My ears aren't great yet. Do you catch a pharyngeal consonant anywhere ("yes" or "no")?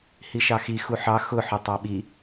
yes